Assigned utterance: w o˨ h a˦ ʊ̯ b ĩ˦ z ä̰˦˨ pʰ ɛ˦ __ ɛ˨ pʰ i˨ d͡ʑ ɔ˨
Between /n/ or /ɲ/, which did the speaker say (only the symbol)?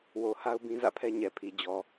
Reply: ɲ